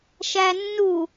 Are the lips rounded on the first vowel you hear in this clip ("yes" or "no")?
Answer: no